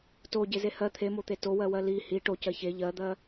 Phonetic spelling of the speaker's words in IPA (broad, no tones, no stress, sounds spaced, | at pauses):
t o ɟ e z e h ɜ t̪ʰ e m o t̪ e t o w ɜ w ɜ l i h i ʈ o c ɜ ç e ʎ ɜ d̪ ɜ